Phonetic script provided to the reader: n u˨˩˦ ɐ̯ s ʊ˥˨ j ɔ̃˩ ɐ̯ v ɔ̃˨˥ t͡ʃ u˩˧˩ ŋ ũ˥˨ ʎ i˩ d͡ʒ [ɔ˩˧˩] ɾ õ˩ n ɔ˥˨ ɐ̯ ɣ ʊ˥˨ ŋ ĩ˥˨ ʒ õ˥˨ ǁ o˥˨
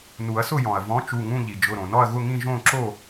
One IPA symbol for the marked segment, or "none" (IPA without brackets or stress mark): ʊ˩˧˩